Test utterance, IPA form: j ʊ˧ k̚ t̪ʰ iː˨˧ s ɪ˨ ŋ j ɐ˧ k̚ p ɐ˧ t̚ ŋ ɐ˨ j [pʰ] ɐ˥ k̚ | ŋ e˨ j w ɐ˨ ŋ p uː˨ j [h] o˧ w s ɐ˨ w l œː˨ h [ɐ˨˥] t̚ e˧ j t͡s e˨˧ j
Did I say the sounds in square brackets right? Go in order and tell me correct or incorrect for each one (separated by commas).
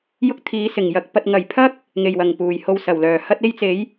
correct, correct, incorrect